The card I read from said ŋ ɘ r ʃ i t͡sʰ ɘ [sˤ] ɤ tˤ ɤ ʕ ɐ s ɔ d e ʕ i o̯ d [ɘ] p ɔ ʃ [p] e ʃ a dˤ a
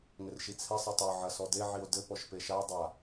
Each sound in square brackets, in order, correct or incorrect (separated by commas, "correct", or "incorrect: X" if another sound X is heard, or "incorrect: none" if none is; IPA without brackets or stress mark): correct, correct, correct